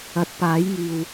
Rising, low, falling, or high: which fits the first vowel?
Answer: rising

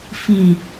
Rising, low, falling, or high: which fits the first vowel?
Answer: low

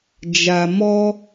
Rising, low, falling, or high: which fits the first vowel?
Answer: low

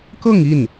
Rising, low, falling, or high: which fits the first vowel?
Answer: falling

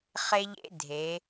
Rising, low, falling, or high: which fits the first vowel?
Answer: high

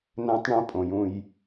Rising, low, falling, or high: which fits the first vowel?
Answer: high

